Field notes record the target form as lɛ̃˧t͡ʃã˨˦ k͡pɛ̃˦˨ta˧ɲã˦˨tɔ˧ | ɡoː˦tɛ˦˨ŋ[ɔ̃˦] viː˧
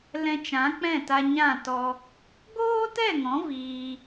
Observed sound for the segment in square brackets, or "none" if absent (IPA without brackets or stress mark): ɔ̃˨˦